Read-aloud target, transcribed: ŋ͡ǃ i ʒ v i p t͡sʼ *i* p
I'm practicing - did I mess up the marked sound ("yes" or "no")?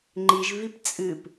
yes